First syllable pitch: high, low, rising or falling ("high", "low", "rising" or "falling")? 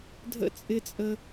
high